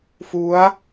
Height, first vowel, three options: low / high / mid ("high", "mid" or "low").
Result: high